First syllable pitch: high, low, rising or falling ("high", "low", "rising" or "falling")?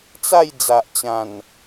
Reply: falling